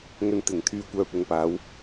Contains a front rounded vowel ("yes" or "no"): yes